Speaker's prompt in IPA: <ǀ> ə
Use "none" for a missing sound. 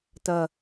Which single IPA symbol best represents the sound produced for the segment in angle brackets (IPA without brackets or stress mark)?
t